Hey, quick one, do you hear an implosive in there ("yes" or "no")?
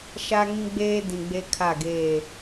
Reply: no